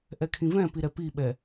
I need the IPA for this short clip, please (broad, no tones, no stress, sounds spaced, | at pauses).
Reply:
ʔ ɛ kʰ ĩ v ɛ̃ p i ɾ ɛ p i ɓ ɛ